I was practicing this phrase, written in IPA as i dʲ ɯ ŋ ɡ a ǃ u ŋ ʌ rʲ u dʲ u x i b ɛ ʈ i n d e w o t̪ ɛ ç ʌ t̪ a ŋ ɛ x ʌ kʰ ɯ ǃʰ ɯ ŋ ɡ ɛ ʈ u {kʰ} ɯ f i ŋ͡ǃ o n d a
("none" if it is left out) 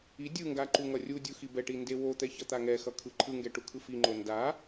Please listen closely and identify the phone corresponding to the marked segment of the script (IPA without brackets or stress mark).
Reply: kʰ